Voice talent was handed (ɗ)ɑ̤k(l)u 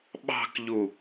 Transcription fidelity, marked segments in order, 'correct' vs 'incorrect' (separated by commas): incorrect, incorrect